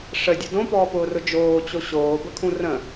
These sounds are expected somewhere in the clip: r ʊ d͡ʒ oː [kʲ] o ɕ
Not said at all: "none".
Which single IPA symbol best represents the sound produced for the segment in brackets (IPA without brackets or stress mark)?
t͡ɕ